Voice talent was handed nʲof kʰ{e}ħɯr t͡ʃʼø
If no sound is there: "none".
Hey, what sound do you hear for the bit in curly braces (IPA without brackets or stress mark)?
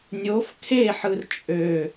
e